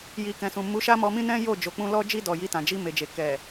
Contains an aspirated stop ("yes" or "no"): no